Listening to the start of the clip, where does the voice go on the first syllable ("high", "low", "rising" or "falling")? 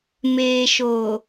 low